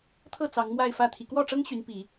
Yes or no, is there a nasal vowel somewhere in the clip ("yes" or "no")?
no